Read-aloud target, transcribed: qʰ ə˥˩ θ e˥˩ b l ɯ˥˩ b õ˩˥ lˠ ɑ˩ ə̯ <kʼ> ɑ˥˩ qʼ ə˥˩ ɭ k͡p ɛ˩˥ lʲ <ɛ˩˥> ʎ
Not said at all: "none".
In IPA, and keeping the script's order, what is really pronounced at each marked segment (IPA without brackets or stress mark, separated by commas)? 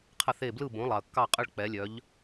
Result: kː, œ˩˥